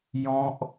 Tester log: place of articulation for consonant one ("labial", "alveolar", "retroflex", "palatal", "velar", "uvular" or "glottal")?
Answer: palatal